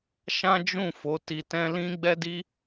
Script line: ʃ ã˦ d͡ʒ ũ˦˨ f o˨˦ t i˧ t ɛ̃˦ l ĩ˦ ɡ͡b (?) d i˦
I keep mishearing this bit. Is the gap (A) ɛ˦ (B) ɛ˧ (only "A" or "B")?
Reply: A